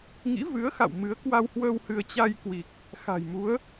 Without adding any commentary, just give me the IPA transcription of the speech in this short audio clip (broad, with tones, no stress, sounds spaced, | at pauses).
ŋ ḭ˧˥ v ɨ˨˦ ə̯ x a̰˧˨ w m ɨ˨˦ ə̯ k w a˧ w h w əː˧ w h ɨ˧ ə̯ t͡ɕ a˧ j k w i˨˩ k̚ | x a̤˨˩ j m u˨˦ ə̯